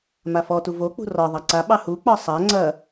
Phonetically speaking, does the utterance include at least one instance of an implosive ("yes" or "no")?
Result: yes